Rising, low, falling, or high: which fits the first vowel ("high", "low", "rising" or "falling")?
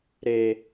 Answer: low